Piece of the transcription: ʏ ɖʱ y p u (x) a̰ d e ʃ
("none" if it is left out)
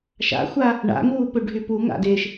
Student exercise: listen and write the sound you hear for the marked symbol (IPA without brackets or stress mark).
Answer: ŋ